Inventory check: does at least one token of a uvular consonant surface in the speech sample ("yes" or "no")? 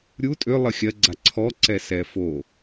no